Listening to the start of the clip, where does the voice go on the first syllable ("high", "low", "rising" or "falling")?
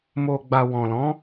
low